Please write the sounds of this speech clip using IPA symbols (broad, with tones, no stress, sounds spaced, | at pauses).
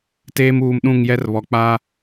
t eː˦ m uː˨ m ɗ ũ˦˨ ŋ j ɛ˦ r β ɔ˨ k͡p a˦